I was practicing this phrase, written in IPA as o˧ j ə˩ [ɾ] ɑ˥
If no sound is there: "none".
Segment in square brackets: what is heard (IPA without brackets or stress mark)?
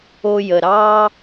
ɾ